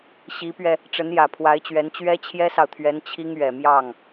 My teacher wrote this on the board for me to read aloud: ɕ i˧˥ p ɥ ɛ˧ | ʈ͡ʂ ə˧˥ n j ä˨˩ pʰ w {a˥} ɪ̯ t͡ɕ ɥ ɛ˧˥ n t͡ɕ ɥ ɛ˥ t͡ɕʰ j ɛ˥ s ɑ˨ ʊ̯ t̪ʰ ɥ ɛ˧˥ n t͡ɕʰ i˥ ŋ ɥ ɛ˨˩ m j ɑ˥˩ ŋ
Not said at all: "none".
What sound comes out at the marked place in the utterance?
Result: a˧˥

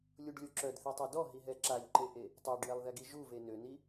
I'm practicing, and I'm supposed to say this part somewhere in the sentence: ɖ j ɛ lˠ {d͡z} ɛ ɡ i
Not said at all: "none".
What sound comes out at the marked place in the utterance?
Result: ð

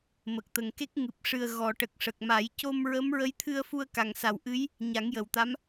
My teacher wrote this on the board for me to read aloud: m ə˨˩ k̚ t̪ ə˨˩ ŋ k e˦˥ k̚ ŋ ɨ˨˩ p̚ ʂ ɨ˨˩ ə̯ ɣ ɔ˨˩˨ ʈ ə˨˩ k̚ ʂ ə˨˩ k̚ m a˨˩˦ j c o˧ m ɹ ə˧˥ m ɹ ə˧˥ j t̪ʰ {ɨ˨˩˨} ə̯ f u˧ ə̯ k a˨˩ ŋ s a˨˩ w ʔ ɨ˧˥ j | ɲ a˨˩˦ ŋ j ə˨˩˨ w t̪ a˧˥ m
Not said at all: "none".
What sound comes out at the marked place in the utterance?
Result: ɨ˧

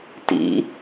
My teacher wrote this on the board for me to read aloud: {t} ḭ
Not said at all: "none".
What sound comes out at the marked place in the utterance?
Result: t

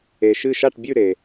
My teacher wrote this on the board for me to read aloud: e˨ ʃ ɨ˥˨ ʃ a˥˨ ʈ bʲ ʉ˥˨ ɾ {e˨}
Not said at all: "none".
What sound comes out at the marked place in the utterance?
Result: e˨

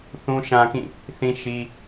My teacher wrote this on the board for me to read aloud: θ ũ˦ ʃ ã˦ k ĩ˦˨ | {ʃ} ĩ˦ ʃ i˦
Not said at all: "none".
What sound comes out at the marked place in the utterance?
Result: θ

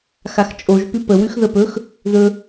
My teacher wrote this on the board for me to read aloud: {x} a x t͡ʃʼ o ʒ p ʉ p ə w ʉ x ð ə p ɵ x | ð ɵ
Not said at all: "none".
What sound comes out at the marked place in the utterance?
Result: x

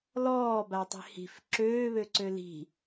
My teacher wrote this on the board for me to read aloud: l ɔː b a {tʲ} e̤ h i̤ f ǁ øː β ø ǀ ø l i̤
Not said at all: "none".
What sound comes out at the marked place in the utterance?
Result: tˤ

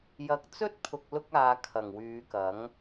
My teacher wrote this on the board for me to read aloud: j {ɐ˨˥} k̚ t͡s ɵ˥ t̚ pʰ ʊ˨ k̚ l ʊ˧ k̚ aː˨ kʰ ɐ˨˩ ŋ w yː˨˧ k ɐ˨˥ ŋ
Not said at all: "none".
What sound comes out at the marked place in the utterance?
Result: ɐ˨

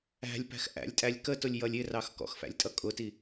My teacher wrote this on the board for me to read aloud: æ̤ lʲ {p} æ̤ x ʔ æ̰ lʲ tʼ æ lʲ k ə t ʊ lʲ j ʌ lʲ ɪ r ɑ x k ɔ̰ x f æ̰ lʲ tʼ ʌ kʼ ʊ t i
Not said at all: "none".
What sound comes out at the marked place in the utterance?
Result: p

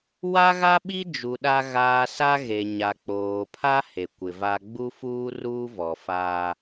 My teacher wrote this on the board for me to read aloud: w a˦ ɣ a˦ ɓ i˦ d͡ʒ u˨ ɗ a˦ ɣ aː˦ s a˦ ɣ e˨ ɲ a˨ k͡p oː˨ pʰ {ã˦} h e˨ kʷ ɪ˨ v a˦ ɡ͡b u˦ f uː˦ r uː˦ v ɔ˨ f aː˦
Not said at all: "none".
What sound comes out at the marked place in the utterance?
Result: a˦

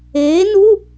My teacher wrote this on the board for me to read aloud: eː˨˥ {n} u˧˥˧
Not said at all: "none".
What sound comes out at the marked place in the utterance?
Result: n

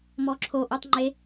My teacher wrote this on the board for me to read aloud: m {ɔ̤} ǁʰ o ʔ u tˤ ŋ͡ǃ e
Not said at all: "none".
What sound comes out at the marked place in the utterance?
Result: ɔ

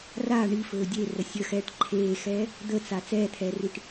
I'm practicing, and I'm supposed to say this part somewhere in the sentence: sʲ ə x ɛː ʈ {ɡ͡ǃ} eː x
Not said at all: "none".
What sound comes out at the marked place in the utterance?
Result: ǃʰ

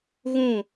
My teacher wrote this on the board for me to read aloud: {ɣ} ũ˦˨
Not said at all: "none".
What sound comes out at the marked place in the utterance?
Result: ɣ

